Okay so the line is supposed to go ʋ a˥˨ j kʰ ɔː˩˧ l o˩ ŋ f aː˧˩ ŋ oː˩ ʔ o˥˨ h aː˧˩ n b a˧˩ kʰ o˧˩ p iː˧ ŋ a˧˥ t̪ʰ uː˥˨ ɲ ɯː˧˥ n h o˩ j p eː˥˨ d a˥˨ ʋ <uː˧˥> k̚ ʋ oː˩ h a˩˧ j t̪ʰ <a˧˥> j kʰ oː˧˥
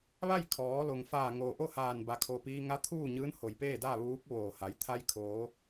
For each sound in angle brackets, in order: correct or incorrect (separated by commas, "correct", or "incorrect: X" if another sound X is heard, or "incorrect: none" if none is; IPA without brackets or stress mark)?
correct, incorrect: a˧